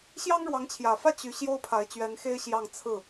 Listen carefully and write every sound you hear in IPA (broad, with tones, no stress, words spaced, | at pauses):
ɕjɑ˥ŋɻwɑ˧˥ŋt͡ɕʰjä˨˩fä˥˩ t͡ɕy˧˥ɕjo˥ʊ̯ pʰa˧˥ɪ̯t͡ɕɥɛ˧˥nxe˥ɪ̯ ɕjɑ˥˧ŋ t͡sʰɹ̩˥˩